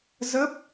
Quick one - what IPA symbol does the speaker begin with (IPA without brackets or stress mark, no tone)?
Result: z